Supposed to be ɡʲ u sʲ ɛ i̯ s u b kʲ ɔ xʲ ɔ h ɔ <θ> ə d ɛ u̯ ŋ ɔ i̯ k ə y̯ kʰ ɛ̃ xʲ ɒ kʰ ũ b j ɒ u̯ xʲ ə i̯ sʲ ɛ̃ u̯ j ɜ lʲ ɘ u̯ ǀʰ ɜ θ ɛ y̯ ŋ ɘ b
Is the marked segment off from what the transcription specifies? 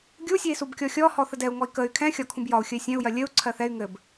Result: no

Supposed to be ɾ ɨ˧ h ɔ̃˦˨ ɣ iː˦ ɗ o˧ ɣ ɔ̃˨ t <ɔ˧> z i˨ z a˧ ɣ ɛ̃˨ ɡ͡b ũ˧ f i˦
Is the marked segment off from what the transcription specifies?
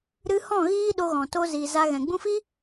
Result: yes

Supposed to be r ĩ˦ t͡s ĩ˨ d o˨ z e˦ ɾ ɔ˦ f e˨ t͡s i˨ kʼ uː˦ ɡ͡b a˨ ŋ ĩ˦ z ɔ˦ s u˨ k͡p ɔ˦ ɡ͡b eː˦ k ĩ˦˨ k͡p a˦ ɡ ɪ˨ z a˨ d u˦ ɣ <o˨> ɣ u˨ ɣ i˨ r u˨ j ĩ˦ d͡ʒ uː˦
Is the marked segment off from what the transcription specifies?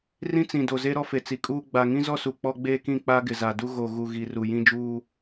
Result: no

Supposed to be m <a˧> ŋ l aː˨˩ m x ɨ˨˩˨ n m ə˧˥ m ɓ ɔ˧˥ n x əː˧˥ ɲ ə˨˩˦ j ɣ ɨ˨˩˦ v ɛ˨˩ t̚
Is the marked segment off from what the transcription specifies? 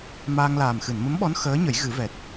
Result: yes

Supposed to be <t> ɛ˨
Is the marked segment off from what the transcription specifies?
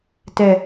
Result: no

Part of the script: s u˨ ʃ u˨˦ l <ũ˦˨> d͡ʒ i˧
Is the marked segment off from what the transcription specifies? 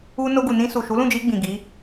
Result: no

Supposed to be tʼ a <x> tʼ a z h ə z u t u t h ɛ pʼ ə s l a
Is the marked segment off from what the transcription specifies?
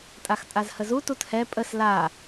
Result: no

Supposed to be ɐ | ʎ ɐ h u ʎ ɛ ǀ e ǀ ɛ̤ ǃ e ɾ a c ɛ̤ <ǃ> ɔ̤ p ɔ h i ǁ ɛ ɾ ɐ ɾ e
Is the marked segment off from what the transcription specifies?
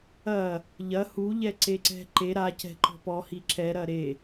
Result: no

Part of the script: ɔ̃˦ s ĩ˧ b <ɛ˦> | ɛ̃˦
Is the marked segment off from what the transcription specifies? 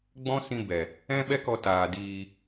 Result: yes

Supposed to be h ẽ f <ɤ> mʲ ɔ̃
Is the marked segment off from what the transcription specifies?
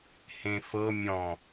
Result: no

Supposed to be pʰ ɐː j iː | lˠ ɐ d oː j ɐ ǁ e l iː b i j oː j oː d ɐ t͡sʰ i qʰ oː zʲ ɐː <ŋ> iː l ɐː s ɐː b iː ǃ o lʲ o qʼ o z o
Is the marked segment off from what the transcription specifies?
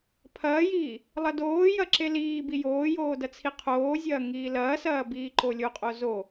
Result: no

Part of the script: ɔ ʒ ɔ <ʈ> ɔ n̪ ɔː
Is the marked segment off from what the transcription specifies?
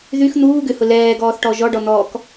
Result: yes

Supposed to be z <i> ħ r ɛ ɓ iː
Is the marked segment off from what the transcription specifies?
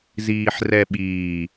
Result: yes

